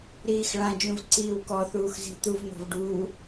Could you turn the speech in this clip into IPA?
ɾ iː x ɭ ã d͡ʒ ũ v ǀ iː w k ɔ θ uː x z i̤ t̪ u v n̪ ɔ̤ v ɖ uː

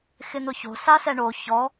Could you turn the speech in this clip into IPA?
x ɪ n̪ ʊ ç o̤ s a s ɛ ɳ o ç ɔ

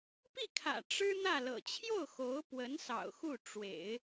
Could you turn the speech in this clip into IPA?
p i˥˩ kʰ ä̰˨˩ ʈ͡ʂ ɻ̩˥ n̪ ä˥˩ l ɤ̰˨˩ t͡ɕʰ j o˥˩ ʊ̯ x o˧˥ ʊ̯ p w ə˧˥ n s ɑ̰˨˩ ʊ̯ x u˥˩ ʈ͡ʂ w ḛ˨˩˦ ɪ̯

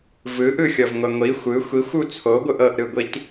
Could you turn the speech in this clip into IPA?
v ɯ ʔ ɯ xʲ ɤ v ŋʷ ɛ ŋʷ i xʷ ɯ xʷ i xʷ u t͡sʰ o ɡʷ ɯ ʔ ɤ ʔ ɾ ɯ ɡʷ i t

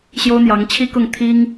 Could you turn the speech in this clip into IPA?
ɕ j o˥ ʊ̯ n̪ j ɑ˧˥ ŋ t͡ɕʰ i˥ k ʊ˥˩ ŋ t̪ʰ i˥ ŋ

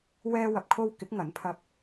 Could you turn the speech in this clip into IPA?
w ɛː˧ w ɐ˨ p̚ kʰ o˧ w k ɪ˨˥ k̚ ŋ ɐ˨˥ n pʰ ɐ˧ p̚

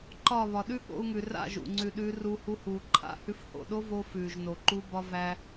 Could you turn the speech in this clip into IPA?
ǃ ɒ˦˨ β ɒ˨ ɗ ʉ˦ ɠ o̰˧ u̯ ŋ ʉ˨ r a̰˦˨ ʒ ṵ˨ ŋ͡ǀ ʉ˨ ɗ ʉː˧ r uː˧ h u˧ h uː˨ ǃʰ a̰˦ h ʉ˧ f h o̰˨ ɗ o˦ v o˧ f ʉː˨ ʒ n o˨ ǃ u˦ b ɒ˦ v æ˧

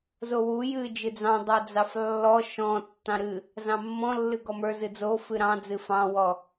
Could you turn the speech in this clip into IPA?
z o w u j ɨ d͡ʒ ɨ d͡z ɑ̃ dˤ o d͡z ɑ f lː ɔ ʃ ɔ̃ tː ɑ̃ ɾ ɨ | z ɑ̃ mː ɔ̃ lː ɨ ɡ ɔ m ə˞ z ɨ d͡z o f ɨ ɾ ɑ̃ d͡z ɨ f ɑ̃ w ɔ

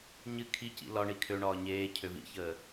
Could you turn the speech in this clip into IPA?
ɲ ɨ kʰ i c ḭ l ɒ ɳ i kʰ ø ɳ ɒː ɲ eː cʰ ø v ḭ ç əː

